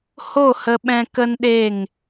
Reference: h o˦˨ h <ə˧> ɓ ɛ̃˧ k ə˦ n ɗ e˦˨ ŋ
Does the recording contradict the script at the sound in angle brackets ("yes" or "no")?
no